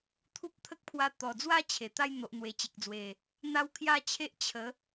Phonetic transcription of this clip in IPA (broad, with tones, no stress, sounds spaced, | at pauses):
t̪ʰ u˦ p̚ t̪ʰ ə˦ k̚ pʰ w a˧ t̪ ɔ˨˩ d͡z w a˥˧ t͡ɕʰ e˨˩ t̪ a˥˧ j n̪ o˨ ʔ n̪ w e˨˩ t͡ɕ e˨ k̚ d͡z w e˨˩ | n̪ a˦ w kʰ j a˥˧ t͡ɕʰ e˦ ʔ t͡ɕʰ ə˨˦